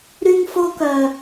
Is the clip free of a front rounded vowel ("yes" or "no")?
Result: no